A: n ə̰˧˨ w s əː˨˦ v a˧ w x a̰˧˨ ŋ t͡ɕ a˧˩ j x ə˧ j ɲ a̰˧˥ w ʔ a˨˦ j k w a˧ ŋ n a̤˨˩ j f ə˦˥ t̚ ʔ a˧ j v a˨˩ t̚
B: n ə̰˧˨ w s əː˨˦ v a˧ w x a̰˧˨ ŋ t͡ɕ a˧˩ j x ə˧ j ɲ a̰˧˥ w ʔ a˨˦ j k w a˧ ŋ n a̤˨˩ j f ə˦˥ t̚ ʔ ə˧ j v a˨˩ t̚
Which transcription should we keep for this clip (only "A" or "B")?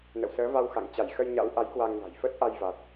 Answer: A